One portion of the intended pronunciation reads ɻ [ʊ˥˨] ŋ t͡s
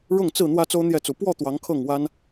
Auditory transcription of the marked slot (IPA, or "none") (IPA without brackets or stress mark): ʊ˥˨